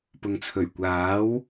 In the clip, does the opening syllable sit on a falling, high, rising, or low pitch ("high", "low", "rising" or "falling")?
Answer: low